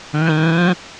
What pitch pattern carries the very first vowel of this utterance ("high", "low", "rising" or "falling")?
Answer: rising